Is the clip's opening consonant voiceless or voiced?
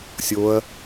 voiceless